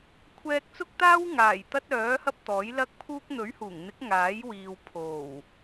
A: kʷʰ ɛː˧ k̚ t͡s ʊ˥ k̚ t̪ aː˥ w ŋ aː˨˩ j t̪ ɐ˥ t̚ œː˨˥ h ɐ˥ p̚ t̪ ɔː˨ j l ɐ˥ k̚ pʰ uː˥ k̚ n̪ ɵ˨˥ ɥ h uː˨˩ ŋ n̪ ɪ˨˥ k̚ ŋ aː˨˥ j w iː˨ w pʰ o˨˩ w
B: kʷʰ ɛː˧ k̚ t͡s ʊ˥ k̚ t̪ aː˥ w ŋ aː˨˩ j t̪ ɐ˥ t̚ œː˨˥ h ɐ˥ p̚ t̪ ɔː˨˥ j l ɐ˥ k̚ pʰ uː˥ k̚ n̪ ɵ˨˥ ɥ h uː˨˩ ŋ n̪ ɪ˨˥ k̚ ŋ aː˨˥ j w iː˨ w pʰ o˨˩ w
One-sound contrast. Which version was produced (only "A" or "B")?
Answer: B